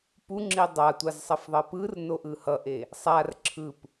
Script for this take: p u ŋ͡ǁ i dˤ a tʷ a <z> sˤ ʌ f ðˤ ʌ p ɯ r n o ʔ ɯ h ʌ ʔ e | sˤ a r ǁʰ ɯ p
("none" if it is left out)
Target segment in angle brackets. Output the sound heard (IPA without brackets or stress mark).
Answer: z